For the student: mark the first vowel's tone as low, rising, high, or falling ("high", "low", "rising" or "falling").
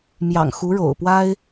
low